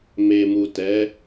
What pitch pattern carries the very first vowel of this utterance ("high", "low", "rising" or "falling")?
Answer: low